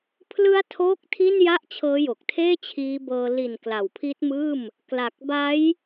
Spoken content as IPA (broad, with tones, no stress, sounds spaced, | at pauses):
pʰ l ɯ˦˥ a̯ tʰ oː˥˩ k̚ tʰ i˥˩ n j a˥˩ ʔ t͡ɕʰ ɤː˦˥ j o˨˩ k̚ tʰ eː˥˩ t͡ɕʰ iː˦˥ b ɤː˧ l i˨˩ n k l a˨˩ w pʰ i˦˥ t̚ m ɯː˥˩ m | k l a˨˩ k̚ b a˦˥ j